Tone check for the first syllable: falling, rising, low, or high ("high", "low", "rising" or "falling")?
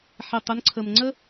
low